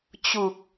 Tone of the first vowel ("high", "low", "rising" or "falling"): low